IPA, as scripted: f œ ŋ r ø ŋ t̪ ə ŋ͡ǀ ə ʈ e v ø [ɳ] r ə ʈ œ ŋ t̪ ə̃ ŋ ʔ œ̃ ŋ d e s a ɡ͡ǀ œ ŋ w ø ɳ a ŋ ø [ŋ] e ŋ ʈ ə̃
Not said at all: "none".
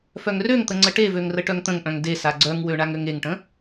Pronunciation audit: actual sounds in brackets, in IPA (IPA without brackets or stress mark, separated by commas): ŋ, ŋ